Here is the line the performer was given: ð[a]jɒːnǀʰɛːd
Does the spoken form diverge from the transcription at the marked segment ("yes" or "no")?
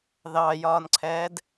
yes